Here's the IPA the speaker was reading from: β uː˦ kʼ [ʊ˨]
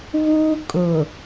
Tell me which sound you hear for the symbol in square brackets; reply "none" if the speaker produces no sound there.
ʊ˨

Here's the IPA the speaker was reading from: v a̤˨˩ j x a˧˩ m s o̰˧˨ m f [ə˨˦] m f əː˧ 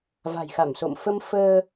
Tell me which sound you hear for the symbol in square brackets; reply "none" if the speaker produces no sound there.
ə˧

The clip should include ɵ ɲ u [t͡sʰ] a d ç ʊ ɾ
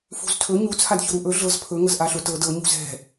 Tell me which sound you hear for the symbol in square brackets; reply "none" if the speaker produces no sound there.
t͡sʰ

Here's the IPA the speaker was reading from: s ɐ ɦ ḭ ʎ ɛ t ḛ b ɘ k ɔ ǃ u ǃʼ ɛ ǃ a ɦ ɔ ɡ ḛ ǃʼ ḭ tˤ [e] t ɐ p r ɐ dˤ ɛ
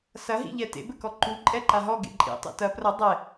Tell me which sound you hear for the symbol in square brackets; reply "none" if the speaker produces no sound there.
ḛ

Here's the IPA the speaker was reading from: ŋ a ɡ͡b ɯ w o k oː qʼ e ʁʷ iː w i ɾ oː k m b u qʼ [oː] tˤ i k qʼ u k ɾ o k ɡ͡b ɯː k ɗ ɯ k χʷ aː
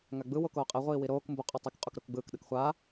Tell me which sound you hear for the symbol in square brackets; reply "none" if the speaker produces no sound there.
o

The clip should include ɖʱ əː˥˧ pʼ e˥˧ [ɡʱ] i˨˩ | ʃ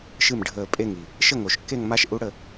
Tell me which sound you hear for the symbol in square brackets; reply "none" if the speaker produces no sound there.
ŋ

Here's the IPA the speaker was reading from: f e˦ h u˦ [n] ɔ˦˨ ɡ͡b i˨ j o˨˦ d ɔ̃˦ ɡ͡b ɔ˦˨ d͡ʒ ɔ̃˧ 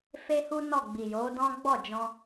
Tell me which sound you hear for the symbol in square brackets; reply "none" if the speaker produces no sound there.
n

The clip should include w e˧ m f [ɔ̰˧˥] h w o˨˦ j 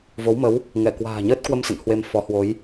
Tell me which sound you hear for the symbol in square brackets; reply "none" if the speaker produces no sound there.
ɔ˨˦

